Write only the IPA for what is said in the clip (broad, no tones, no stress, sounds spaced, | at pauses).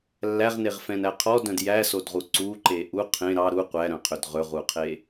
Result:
lː æ ʁ n e ʁ f ɛ̃ n æ qʰ ɔ d œ̃ d j æ s o d ʁ u ǀ u ǃ e ʔ u qʰ ẽ ɾ ɑ ɾ u qʷ æ ɾ œ̃ qʰ ø d ʁ ɵ ʁ u qʰ e